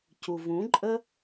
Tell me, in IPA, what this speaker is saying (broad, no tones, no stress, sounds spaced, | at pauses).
c u v ũ ǃʼ ə